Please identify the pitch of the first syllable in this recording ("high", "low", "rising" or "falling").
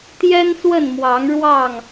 high